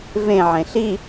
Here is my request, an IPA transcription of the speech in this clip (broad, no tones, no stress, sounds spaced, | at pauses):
v ẽ ʕ ẽ ɬ i